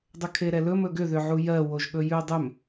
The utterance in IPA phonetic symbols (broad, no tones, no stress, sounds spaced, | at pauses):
dˤ ʏ kʰ e ɾ ɛ l ɵ m ɵ ɡ ʏ ð ʏ ʕ u j ɜ w o ʒ ɠ ɵ j ʉ dˤ ʏ m